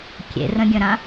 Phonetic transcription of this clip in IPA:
kʲ ḛ r ə̃ ɡʲ ə̃ ɾ ã

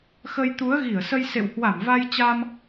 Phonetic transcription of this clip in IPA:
x ə˧ j t̪ u˨˦ ə̯ ɣ i˧˩ ə̯ s ə˧ j s ḛ˧˨ w h w a˧˩ m v a˧ j t͡ɕ a˧ m

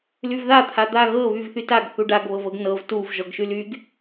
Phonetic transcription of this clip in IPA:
l y v ð a t̪ʰ a d̪ a ɣ ɤ β y v θ y t a ɡ θ u ɖ a ɡ β ɤ v ɤ ɡ n ɤ v t u v ʒ ɔ ɡ ʃ y l y ɡ

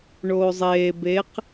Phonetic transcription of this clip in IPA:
ɳ oː zˤ eː b e q

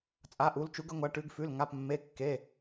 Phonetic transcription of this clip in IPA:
t͡sʼ a˩˧˩ ʔ u˩˧ l t͡ʃ u˩˧ ɡ ə˩˧ ŋʷ a˩˧ ʈ ʉ˩˧ ɡ f ʉ˩˧˩ l ŋ a˩˧˩ p mː e˩˧˩ kː e˩˧˩

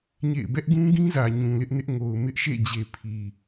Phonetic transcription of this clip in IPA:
ɲ ḛ˦˨ ɪ̯ b ɛ˦ ʔ ɡ ũ˦ ɡ ĩ˦ z ä˨ ɲ ũ˨ l ɪ˦ ʔ n ɪ˦ ʔ ŋ o˨ ʊ̯ m ɪ˦ ʔ ʃ ḛ˦˨ d͡ʑ e˨ pʰ i˨

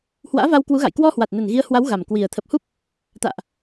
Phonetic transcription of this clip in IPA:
h w a̰ː˧˥ v a˧ w k w u˨˦ ɣ a̰˧˨ j k w ɔ˧ h w a˨˩ t̚ n ə˨˩ n ɣ i˨˦ ə̯ h w a˨˦ w ɣ a˨˩ m k w i˨˩ ə̯ t̪ʰ ə˨˩ p̚ h u˦˥ p̚ | t̪ a̰ː˧˨ ʔ

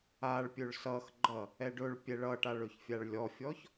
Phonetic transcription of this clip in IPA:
a ɭ pʲ ɵ ɭ s ʌ x ɡ͡ǃ ʌ | ɛ ɖ ɵ ɭ pʲ ɛ ɭ ʌ ʈ a ɭ ɵ ç fʲ a ɭ lʲ ɔ fʲ ɔ ç

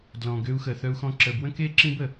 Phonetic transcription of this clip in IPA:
d l ɔ̃˨ ɡ ø˦ u̯ x ə˨ θ œ˦ u̯ x ɔ̃˦ ǁ ə˨ b w ə̃˥ k e˥ ǁ ĩ˥ b ə˩

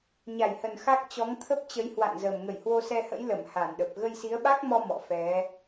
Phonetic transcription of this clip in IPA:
ɲ a˧˩ j h ə˨˩ n x a˦˥ k̚ t͡ɕ ɔ˨˦ ŋ t̪ʰ ə˦˥ p̚ t͡ɕ ə˨˦ j h w a̰˧˨ n z ə˨˩ m ŋ ə˧˩ j h w o˧ s ɛ˧ h ə̰˧˥ j l ə˧˩ m h a˧˩ n ɗ ə˨˩ p̚ ɣ ə˧ j s i˨˦ ə̯ ɓ a˦˥ k̚ m ɔ˧ m ɔ̰˧˨ f ɛ˨˦

